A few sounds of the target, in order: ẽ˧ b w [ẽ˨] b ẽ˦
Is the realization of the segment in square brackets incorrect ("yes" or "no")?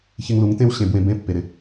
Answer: yes